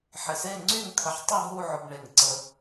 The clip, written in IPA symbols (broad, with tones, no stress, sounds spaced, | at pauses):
ħ ɪ˧˩ s e˥˧ ŋ͡ǀ y˥˧ ŋ t̪ʰ ə˧ ħ tˤ ʊ˥˧ ɦ u˥˧ ʕ ʊ˧ b ɳ e˧˩ ŋ ǀ ə˧